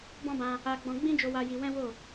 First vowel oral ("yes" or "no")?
no